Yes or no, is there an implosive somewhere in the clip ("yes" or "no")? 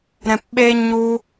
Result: yes